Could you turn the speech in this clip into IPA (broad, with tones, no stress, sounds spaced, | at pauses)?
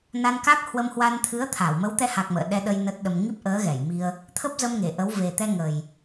n a˧ n k a˦˥ k̚ h w ə˧ m h w a˧ n t̪ʰ ɨ˨˦ ə̯ t̪ʰ a˧˩ w m ə˨˦ w t̪ ɛ˧ h a˨˩ k̚ m ə̰ː˧˨ ɗ ɛ˧ ɗ ə˧ j n ə˦˥ t̚ ɗ ə˧ m ŋ i˦˥ p̚ ʔ əː˨˦ ɣ ɛ˧˩ j m i˧ ə̯ | t̪ʰ ə˦˥ p̚ z ə˧ m ŋ e˧˩ ʔ ə˨˦ w v e˨˩ t̪ ɛ˧ ŋ ə˨˩ j